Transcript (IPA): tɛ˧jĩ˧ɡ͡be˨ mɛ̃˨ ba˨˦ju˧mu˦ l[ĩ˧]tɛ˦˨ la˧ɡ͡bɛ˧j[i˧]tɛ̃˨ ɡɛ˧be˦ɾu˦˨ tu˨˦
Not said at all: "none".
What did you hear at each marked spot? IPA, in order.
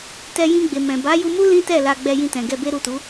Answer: ĩ˦, ĩ˧

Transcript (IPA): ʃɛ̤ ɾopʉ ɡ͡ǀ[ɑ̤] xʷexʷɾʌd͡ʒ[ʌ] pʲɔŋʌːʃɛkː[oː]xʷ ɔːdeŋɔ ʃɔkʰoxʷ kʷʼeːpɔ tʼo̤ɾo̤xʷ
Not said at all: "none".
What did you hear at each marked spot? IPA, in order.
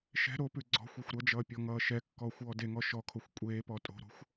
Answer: ɔ̤, ʌː, ɔː

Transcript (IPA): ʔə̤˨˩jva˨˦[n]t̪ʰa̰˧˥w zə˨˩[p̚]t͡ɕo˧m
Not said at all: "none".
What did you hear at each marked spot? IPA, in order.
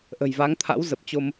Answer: ŋ, p̚

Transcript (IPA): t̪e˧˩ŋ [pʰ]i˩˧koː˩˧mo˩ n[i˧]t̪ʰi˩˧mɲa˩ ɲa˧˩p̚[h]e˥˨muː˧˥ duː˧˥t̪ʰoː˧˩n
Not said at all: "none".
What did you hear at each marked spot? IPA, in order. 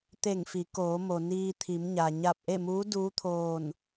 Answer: f, iː˧, ʔ

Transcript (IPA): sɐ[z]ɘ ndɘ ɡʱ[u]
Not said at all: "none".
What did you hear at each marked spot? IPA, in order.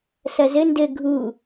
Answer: z, u

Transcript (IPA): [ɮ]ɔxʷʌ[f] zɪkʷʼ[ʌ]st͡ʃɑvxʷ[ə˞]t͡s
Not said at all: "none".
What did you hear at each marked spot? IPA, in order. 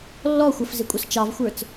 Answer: lː, f, ʌ, ə˞

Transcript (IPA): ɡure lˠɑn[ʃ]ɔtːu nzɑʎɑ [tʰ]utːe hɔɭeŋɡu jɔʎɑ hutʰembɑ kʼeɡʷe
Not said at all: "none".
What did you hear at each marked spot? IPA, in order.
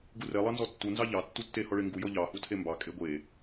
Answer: z, tː

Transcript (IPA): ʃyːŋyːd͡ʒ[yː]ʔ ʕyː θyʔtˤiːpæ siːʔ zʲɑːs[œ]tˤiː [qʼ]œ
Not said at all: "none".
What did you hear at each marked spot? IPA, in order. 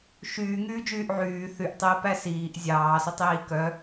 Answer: yː, ø, k

